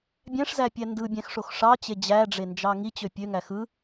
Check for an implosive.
absent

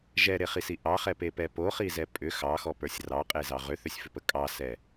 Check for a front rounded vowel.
present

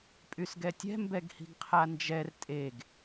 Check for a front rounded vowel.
present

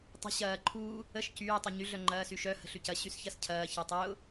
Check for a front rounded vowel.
present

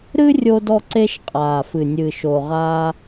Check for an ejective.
present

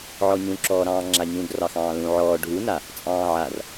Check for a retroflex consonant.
present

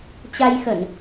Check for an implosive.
absent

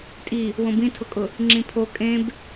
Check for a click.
present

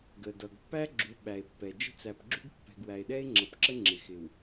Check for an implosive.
present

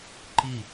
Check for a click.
present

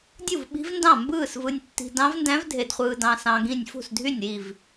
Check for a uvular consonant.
present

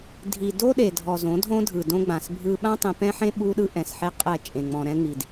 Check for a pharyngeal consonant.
present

